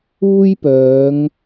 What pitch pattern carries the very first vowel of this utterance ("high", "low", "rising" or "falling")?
high